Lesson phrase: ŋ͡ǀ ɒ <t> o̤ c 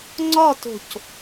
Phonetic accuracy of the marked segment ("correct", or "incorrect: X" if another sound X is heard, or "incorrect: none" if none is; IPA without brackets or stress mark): correct